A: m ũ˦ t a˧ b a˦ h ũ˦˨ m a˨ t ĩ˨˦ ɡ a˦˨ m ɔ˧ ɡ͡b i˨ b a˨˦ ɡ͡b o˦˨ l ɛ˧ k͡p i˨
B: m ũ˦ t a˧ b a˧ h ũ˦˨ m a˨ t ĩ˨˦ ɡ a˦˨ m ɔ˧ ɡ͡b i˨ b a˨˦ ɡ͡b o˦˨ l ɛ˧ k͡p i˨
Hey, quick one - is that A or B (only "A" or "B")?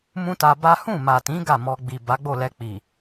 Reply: A